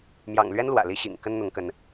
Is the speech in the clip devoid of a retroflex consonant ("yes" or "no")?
yes